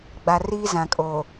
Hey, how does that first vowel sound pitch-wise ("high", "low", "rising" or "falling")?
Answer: low